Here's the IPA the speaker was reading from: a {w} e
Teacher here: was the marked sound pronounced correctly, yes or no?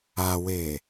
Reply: yes